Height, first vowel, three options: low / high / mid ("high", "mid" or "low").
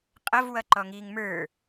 mid